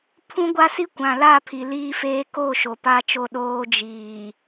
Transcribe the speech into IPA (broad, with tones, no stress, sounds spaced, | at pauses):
pʰ ũ˦ ɡʷ a˦ s i˦ kʷ ã˨ l a˦˨ pʰ i˨ l iː˦ f eː˦ k o˦˨ ʃ o˨ p a˦ t͡ʃ o˦˨ ɗ oː˦ d͡ʒ iː˨